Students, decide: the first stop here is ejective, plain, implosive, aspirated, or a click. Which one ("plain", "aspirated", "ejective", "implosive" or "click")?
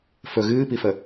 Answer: plain